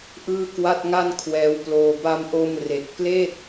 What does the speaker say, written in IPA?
ʔɯː˥˩kwa˥˩t̚ŋa˥˩n kʰwɛː˦˥wploː˧ ba˧mʔo˧m re˨˩k̚pleː˥˩t̚

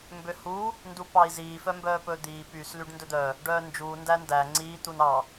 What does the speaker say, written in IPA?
mbøhu | ndupɑi̯ziː fœmbœːpɵːd̪iː pys lyɖndɵd̪œ | ɖœːnd͡ʒuː ndændæ ŋ͡ǀiː t̪unɑ

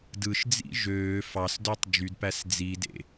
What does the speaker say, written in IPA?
dɯʃd͡zḭ ʒøː fɑsdøtˤ d͡ʒydpæs d͡zidḛ

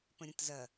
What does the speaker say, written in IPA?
pə̃ɾʲə̃tzɐ

